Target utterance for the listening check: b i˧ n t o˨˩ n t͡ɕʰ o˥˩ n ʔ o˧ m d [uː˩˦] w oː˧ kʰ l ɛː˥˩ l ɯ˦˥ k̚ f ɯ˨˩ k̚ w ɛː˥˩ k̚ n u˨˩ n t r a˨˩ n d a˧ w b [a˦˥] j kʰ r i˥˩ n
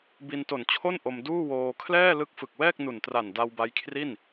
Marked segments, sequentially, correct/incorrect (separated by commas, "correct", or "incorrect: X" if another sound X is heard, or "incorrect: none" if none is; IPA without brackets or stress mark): incorrect: uː˥˩, correct